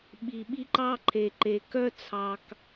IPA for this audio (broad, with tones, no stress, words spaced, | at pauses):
ɓi˨ɓi˦ǃɑ˦ǃʰe˨ ǃe˨ kœ˦t͡sʰɑ˨k